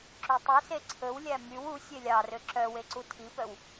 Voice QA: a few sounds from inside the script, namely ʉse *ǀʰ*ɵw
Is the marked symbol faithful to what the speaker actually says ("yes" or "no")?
yes